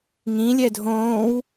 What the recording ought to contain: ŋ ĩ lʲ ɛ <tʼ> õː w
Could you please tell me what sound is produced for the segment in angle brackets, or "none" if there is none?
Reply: dʱ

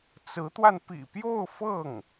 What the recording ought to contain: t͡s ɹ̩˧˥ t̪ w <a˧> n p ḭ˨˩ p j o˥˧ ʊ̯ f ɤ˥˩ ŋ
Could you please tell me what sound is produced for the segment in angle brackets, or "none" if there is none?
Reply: a˧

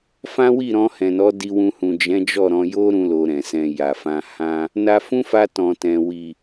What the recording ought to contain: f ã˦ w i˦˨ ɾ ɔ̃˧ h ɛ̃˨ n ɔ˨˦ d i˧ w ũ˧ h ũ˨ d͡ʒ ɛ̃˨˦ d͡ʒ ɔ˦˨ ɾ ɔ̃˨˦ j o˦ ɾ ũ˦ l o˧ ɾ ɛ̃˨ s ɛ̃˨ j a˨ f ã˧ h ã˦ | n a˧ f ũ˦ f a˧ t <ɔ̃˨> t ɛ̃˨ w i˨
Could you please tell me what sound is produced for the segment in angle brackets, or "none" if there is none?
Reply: ɔ̃˨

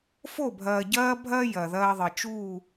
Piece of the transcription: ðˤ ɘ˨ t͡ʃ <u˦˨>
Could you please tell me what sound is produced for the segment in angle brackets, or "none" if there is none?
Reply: u˦˨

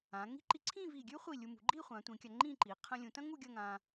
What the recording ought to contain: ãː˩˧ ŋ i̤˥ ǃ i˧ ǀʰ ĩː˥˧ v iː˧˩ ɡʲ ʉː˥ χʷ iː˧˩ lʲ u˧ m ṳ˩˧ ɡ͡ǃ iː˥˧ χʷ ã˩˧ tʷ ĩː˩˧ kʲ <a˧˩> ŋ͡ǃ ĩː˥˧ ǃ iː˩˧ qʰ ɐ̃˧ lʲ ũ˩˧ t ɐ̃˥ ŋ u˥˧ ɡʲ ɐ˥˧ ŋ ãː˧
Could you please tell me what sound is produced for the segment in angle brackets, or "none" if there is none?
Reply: a˧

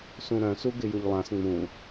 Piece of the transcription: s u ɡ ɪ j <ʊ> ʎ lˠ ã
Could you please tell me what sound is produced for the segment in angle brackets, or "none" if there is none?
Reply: ʊ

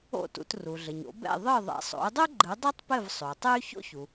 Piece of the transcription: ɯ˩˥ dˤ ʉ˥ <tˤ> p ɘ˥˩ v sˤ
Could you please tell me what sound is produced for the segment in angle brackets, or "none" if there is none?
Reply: tˤ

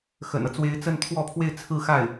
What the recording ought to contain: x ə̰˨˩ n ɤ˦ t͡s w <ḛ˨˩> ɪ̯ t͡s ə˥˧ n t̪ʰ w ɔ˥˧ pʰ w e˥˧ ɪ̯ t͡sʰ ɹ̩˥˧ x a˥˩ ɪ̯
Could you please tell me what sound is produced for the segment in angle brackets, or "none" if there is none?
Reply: e˧˥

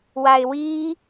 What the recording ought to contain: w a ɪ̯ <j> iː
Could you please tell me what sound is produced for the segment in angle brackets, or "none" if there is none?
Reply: w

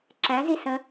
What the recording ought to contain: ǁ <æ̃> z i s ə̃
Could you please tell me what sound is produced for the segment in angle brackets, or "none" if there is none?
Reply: æ̃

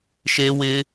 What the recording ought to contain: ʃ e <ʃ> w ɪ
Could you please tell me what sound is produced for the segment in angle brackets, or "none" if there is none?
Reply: none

